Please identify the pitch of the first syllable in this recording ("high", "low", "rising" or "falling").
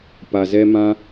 low